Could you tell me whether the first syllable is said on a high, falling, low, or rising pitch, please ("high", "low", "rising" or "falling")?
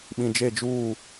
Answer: low